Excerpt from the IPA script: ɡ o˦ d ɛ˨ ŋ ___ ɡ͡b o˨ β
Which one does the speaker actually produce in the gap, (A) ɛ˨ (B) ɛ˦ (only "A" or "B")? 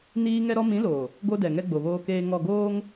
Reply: B